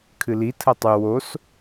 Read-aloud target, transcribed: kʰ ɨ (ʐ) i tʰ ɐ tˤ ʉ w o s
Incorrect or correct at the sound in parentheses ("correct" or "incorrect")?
incorrect